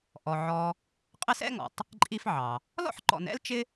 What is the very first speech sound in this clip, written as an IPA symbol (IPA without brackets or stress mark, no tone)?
ʔ